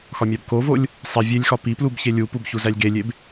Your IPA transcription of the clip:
x ɒ mʲ æ b k o v o lʲ | sˤ i vʲ e lʲ x ɒ p i p l u b ç e lʲ u p u b ç u z æ lʲ ɡ e lʲ e b

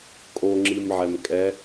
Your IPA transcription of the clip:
kʼ o ŋ͡ǁ i m ʕ ɛ m kʼ ɛ

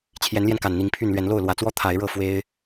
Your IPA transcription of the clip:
t͡ɕʰ j ɛ˨˦ n l j ɛ˧ n k a˨˩ n n̪ i˨˦ ŋ pʰ y˥˨ n l ɥ ɛ˨˦ n l o˥˨ ʊ̯ l w ä˨˩ t͡s w ɔ˦ t̪ʰ a˨˦ ɪ̯ ɻ ɤ˥˨ f w e˦ ɪ̯

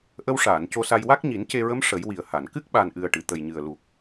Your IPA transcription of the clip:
ʔ ə˧ w ʂ aː˨˩˨ n c o˧ s a˧ j w a˦˥ k̚ ɲ i˨˩˦ n c e˧ ɹ ə˧˥ m ʂ ə˨˩˦ j w i˨˩ ə̯ h a˨˩˨ n k ɨ˦˥ k̚ ɓ a˨˩ n ʔ ɨ˨˩ ə̯ ʈ ɨ˨˩˨ t̪ ə˨˩ j ɲ ɨ˨˩ ə̯ l u˨˩ k̚

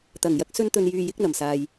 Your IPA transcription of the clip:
t̪ ɐ˨˩ ŋ j ɐ˧ k̚ s ɵ˧ n t̪ ɵ˨ n j yː˨ j ɪ˨˥ k̚ n̪ ɐ˨˩ m s aː˨ j

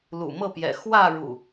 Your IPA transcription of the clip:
l ṵ˨˩ m ɤ˥˨ p j ɛ̰˨˩ x w ä˥˨ ɻ ṵ˨˩

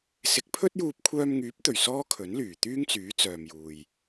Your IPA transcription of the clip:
s ɪ˨˥ k̚ pʰ ɵ˥ t̚ j uː˧ p̚ kʷʰ œː˧ m ŋ yː˨˥ p̚ t̪ ɵ˨˩ ɥ s ɔː˥ kʰ ɵ˨˥ n l yː˨˩ t̪ yː˥ ŋ t͡s yː˨˥ t͡s œː˨ m j uː˨ j

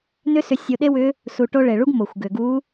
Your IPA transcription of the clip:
n ʏ˥ s ʏ˧˥ sʲ o˧ ɗ e˥ w ʏ˧˥ | s u˧ ʈ o˥ ɭ e˩ ɭ u˥ ɡ m o˩ xʷ ɡ ʏ˩ ɡ u˧˥

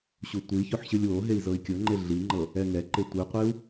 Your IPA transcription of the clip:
ɕ u tʷ i ç o ħ ɕ ɯ lʲ w o ɦ e i̯ z ɤ i̯ kʲ ɤ ŋ͡ǃ e ɮ i ŋ͡ǃ ɤ | ɛ ŋ ɛ ǃ e tʷ ɯ qʷ i u̯

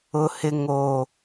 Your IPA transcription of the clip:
ʊ˨ h ɪ˨ ŋ o˨

